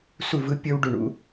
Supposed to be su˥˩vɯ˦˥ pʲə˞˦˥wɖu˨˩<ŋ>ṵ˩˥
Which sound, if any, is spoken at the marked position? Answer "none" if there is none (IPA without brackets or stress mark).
ɳ